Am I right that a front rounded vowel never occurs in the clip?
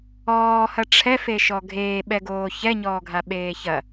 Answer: yes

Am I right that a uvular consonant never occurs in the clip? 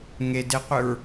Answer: no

